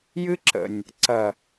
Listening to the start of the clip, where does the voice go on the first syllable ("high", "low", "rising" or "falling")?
high